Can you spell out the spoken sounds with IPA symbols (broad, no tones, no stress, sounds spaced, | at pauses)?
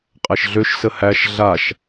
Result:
qʼ æ ʃ ɮ ø ʃ s ə h æ ʃ ɮ a ʃ